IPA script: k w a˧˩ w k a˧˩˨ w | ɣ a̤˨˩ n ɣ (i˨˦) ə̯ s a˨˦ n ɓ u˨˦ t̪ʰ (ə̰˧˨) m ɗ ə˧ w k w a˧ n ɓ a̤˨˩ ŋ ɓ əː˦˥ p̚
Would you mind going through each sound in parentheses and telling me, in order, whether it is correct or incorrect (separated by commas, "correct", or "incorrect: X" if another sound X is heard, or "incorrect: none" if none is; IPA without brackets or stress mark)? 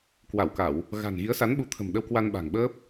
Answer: correct, incorrect: ə̤˨˩